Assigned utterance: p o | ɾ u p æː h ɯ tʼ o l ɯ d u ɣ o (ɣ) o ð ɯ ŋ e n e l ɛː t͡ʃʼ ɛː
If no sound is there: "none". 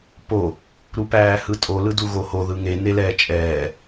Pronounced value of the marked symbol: h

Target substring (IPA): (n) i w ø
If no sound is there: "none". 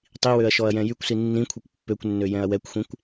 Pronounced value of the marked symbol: tˤ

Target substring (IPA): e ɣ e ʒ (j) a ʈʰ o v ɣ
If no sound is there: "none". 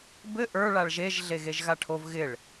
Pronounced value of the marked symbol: ɣ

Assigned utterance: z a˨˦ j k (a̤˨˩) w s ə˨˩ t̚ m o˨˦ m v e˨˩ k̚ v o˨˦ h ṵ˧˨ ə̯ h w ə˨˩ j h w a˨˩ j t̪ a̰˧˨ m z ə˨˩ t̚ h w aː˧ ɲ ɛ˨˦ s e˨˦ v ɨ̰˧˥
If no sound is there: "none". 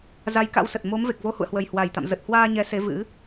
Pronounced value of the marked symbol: a̰˧˥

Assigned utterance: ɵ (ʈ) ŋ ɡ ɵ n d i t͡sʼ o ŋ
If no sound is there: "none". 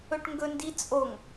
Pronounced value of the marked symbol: ʈ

